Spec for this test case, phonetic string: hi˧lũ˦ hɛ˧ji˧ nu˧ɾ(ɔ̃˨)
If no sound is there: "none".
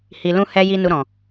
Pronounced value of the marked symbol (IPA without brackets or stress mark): ɔ̃˨